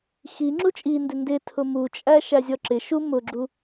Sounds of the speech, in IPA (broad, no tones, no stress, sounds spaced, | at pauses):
x i ŋ͡ǁ u t͡ʃʼ i n d ɪ n d ɪ tʰ ʊ m u t͡ʃʼ æ ʃ æ zʲ ɔ ǁ ɪ ʃ u m ʊ ɡ͡ǁ u